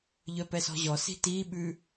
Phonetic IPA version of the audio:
ʎ œ p ɛ s ɔ̤ ʑ ɔ s i̤ t i ɓ ʉ

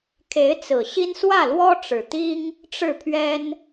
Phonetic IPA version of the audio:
kʰ e˧˥ ɪ̯ t͡s ɹ̩˨˩ ɕ i˥ n s w ä˥˩ l w ɔ˥ ʈ͡ʂ ɻ̩˨˩ t̪ i˥ ŋ | ʈ͡ʂ ɻ̩˥˩ pʰ ɥ ɛ˥ n

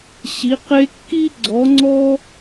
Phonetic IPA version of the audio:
ɕ i˧˥ q e˥ kː i˥ ɡ͡ǀ ɔ˧˥ ŋ͡ǀ ɔ˥

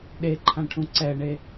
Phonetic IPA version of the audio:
ɗ e ǃʰ ã ʈʰ ũ ǀ ɛ ɳ e

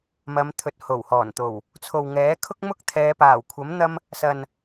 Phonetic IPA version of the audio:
m ɐ˨˧ m t̪ʰ ɵ˨ t̚ h o˨˩ w h ɔː˨˩ n t̪ o˨˩ w | t͡sʰ o˨ w ŋ ɛː˨˥ kʰ ʊ˥ k̚ m ʊ˥ k̚ t̪ʰ ɛː˨˧ p aː˨˩ w kʷʰ ɐ˨˥ m n̪ ɐ˧ m | s ɐ˨ n

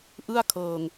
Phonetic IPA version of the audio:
ʔ ɯ˥˩ a̯ kʰ ɤː˧ ŋ

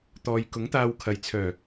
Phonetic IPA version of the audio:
t̪ ɔː˨ j k ʊ˨˥ ŋ t̪ aː˧ w kʰ ɐ˧ j t͡sʰ œː˨˩

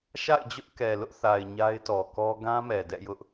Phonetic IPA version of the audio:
ʃ a̰˦˨ ɪ̯ d͡ʑ ʊ˦ ʔ k ɛ˨ l ʊ˦ ʔ θ a˨ ɪ̯ ɲ a˦ ɪ̯ t ɔ˨ k ɔ˦ ɡ ã˦ m ɛ˨ d ɛ̰˦˨ j ʊ˦ ʔ

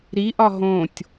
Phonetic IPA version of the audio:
ɾ i ʔ ɒ ɦ õ tʲ

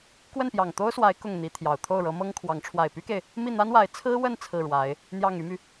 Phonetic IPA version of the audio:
k w ə˥˩ n p j ɑ˨˩ ŋ t̪ o˥ ʊ̯ s w a˧˥ ɪ̯ k ʊ˥˩ ŋ n̪ i˧˥ t̪ʰ j ɑ˨˩ ʊ̯ t̪ʰ o˥˩ ʊ̯ ɻ ɤ˧˥ m ɤ˥ ŋ kʰ w ɑ˧˥ ŋ ʈ͡ʂʰ w a˨˩ ɪ̯ p y˥ k e˨ ɪ̯ | m i˥˩ n̪ a˥ n w a˧˥ ɪ̯ t͡sʰ ɹ̩˥ w ə˥˧ n t͡sʰ ɹ̩˥˩ ɻ w a˧˥ ɪ̯ | n̪ j ɑ˥˩ ŋ y˥ m y˨

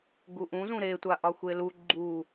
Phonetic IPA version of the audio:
ɡ u ʔ ũ z ũ ɾ e tʷ a ʔ ɒ xʷ e l u ɡ͡ǃ u

